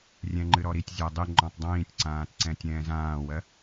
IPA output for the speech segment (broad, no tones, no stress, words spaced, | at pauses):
rʲɛ̃ŋ͡ǃɨɾɔɾitʲ zʲɜdˤi ŋ͡ǃɔ̃tˤdˤĩːtʲǀãːtǀɛ̃ tʲɛ̃ːzãːwɜ